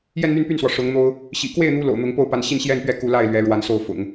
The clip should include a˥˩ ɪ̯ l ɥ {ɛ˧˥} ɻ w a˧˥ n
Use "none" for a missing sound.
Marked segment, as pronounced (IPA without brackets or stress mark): ɛ˧˥